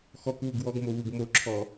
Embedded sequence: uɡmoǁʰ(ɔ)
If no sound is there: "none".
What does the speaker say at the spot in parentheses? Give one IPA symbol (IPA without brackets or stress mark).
ɔ